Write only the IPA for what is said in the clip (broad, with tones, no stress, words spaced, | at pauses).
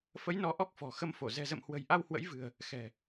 fə˨˦jnɔ˨˦ ʔɔ˦˥k̚fɔ̤˨˩ xə˧mfo˧˩ zɛ̤˨˩zə̰˧˨mhwə̤˨˩j ʔa˧whwə̰˧˥jvɨ̤˨˩ə̯ | xɛ̤˨˩